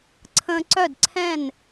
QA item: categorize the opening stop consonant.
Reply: click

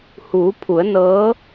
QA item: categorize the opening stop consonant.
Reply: aspirated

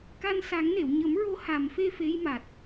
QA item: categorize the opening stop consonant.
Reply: plain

